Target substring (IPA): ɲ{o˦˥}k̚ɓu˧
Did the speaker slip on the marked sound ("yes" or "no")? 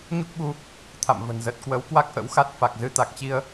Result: yes